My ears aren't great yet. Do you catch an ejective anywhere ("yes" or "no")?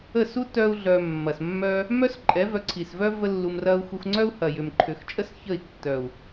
yes